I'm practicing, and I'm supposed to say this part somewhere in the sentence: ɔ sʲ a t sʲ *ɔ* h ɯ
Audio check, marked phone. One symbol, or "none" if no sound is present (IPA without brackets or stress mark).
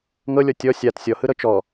ɔ